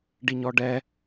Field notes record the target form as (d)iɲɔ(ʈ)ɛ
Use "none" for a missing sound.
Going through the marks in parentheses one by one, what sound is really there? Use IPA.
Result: ɖ, ɖ

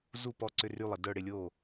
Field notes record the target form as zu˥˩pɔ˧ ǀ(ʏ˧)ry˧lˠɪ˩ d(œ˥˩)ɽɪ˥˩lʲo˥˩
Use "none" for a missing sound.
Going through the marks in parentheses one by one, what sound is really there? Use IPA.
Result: ʏ˧, œ˥˩

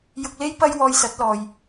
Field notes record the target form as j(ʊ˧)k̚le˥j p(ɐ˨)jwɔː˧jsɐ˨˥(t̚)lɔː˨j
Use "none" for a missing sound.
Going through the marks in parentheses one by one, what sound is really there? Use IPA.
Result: ʊ˧, ɐ˥, t̚

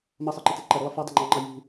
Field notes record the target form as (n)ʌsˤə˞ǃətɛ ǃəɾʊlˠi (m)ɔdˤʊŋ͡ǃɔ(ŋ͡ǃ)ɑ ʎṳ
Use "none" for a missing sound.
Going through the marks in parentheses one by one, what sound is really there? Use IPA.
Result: m, f, ŋ͡ǃ

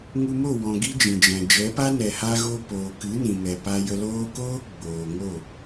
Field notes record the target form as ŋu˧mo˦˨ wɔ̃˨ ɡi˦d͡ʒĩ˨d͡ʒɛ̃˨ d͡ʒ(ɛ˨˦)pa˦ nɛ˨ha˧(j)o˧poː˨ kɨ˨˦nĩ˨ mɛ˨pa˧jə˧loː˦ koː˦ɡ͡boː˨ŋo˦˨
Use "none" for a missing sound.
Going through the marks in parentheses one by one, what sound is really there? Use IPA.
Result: ɛ˨˦, ɣ

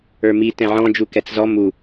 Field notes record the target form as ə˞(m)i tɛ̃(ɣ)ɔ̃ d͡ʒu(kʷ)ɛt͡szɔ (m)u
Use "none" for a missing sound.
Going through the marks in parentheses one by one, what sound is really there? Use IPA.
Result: m, ʕ, k, m

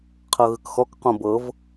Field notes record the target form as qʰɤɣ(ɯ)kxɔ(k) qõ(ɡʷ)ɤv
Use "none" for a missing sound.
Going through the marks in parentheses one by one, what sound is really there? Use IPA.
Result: ɯ, k, b

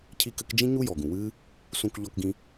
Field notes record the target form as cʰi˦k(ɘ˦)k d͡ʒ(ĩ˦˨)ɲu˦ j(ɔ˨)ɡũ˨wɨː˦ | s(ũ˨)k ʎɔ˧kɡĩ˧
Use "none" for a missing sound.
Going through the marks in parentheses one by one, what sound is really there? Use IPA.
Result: ɘ˦, ĩ˦, ɔ˨, ũ˧

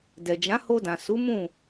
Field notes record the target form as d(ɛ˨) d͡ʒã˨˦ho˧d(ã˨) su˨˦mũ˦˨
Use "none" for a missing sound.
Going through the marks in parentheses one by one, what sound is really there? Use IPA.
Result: ɛ˨, ã˨

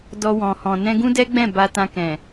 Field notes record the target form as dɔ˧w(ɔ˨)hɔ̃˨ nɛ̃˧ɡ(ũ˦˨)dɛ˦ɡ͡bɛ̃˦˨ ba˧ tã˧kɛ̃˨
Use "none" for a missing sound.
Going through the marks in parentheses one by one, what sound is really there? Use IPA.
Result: ɔ̃˨, ũ˦

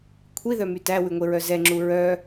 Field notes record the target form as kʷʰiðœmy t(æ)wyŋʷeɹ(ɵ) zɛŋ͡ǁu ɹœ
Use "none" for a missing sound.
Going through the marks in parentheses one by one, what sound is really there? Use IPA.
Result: æ, œ

